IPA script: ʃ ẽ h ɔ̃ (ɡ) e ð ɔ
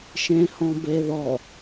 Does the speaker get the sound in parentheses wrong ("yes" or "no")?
yes